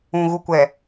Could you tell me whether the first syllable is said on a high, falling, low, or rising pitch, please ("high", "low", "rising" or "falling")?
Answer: low